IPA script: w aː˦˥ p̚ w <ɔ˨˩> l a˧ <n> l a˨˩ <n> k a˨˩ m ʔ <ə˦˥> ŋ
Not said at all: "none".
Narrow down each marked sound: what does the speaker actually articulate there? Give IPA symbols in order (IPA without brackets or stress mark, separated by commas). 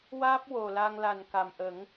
o˨˩, ŋ, n, ə˨˩˦